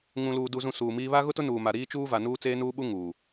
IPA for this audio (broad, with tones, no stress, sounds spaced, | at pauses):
ŋ ũ˨ l uː˨ d u˨ z ũ˨ s uː˨ m iː˦ β a˦ ɣ ʊ˦ t ʊ˦ n uː˨ m a˨ ɾ iː˦ t͡ʃ uː˦ v a˨ n uː˦ t͡s eː˦ n uː˦ ɓ u˦ ŋ uː˨